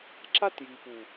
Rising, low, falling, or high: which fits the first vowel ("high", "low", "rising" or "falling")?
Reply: high